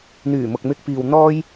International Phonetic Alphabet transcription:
n̪yː˨˩mʊ˨k̚mɪ˧k̚piː˨w n̪ɔː˥j

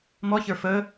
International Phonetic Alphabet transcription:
mɔçə˞ fə

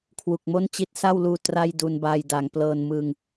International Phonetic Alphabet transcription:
kʰwu˨˩k̚mo˥˩nt͡ɕi˦˥t̚ sa˥˩wluː˧ tra˥˩jdu˧nbaː˧j da˩˦ŋ plɤː˧nmɯ˧ŋ

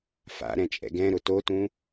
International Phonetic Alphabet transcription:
fa̰ɾɛ̃t͡ʃʼɛ̰ ɡɛ̃ɾʊ totũ

